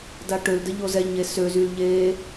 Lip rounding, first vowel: unrounded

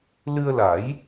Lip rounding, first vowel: unrounded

